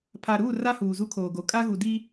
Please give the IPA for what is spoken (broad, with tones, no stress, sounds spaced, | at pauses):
pʰ a˨ ɾ uː˦˨ r a˦ h uː˨ z u˦ kʰ oː˨ ɡ o˨ kʼ a˦ ɣ u˨ d i˦